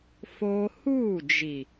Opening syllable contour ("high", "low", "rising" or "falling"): high